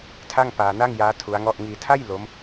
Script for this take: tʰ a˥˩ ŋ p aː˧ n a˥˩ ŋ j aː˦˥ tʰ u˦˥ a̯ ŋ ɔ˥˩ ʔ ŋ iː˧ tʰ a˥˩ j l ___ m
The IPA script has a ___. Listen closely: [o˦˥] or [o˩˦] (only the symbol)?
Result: o˦˥